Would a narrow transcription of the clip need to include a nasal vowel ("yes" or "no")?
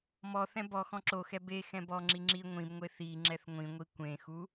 yes